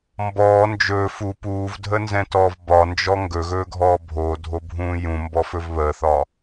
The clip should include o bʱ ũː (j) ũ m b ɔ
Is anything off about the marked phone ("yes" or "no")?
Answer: no